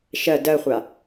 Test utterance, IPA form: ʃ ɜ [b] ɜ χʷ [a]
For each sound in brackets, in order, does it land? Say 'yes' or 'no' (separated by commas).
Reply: no, yes